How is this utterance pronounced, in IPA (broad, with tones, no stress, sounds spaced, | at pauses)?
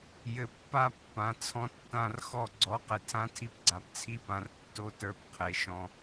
j ɘ˨ pː a˧ pː ã˨ t͡sʰ ɔ̃˧ tː ã˦˨ r x ɔ˦˨ ɡ͡ǀ ɔ˨˦ q e˨ tʰ ã˦ tʰ i˧ p ɡ͡ǀ a˨ p t͡sʰ i˦ p ã˨ r tː o˦ t ə˞˧ p qʰ e˨ ʃ ɔ̃˧